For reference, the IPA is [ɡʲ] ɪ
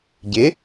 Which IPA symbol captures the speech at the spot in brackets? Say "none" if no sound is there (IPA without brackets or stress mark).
ɟ